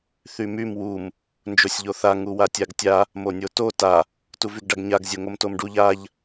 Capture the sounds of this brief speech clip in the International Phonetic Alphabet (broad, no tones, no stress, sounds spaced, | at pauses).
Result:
θ y m y m w u m | n d͡ʒ o sʲ ʎ o θ a ŋ u w a tʲ a ɡ tʲ a | m o nʲ o t o t a | t u v y ɡ ɖ a ɡ ɲ a ɡ zʲ o ŋ o m t o m ɖ u ʎ a ʎ